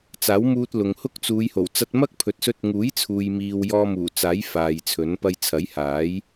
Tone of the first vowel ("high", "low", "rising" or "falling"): rising